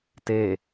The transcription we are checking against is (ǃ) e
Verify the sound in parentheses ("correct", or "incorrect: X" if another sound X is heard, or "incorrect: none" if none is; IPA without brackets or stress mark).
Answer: incorrect: t